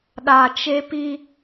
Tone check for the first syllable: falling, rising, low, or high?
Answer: low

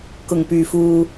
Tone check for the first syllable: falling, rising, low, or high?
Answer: low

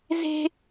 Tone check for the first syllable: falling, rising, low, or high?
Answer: high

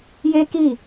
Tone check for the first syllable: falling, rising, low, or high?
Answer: high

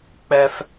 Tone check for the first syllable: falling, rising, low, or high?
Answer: high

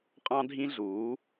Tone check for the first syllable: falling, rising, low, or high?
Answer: high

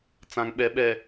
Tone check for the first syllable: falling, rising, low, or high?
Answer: low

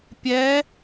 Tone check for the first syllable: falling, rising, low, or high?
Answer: rising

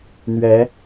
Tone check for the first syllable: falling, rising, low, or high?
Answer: rising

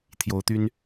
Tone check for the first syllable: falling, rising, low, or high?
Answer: rising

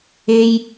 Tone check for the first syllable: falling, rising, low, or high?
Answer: high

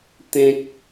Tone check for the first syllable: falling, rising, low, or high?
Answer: low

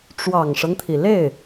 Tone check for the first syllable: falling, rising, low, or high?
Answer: low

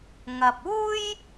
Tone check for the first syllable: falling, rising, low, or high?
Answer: low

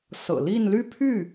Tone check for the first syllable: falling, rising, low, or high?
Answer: low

